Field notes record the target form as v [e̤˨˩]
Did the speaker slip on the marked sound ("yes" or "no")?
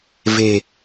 no